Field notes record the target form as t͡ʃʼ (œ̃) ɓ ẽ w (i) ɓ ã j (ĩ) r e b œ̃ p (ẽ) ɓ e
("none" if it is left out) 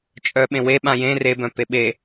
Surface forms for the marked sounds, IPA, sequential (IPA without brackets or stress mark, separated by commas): œ, e, ẽ, e